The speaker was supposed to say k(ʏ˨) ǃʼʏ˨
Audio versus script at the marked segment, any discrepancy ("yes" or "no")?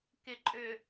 yes